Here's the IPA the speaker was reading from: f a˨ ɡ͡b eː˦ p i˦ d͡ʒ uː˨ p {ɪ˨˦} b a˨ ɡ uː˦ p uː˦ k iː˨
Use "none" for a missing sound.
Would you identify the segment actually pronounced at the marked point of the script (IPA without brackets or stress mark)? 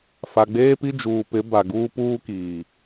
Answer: ɪ˨˦